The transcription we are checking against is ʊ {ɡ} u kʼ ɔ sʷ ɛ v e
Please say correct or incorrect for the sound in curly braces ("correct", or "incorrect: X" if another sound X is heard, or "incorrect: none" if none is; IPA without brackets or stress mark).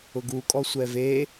correct